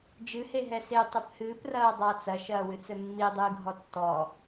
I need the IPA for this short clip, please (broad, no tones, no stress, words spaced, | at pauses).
d͡ʒɨhe ɦɛse tˤɘphɨːprɐː dˤat͡sɐ ʃɐːwɨt͡sɘmːi dˤɨːɡʱɔtːɔ